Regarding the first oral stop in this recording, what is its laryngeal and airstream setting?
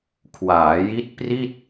aspirated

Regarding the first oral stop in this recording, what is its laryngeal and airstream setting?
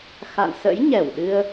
implosive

